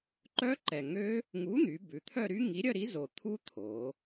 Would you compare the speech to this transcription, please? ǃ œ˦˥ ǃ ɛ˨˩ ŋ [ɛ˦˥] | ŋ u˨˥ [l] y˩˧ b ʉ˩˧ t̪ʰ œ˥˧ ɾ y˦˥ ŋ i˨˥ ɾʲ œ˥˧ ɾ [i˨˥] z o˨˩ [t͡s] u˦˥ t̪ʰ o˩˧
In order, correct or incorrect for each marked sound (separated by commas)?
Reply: incorrect, incorrect, correct, incorrect